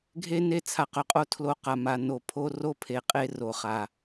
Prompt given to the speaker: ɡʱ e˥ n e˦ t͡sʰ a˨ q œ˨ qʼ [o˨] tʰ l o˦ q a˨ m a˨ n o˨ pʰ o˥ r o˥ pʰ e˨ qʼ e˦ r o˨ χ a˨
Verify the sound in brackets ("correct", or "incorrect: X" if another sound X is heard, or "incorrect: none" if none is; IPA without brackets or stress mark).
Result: incorrect: o˥